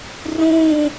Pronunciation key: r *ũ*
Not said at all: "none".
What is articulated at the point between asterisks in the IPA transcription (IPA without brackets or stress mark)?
ũ